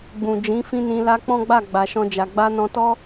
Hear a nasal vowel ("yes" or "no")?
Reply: yes